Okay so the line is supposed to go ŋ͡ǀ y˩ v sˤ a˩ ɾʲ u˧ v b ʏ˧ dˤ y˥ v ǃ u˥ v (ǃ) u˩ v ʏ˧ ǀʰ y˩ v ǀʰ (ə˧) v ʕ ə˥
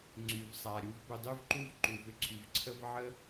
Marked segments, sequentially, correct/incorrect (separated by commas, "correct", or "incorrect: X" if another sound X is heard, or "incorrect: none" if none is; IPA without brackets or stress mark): correct, incorrect: ə˥